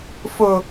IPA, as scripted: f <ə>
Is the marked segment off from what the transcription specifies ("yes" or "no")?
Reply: yes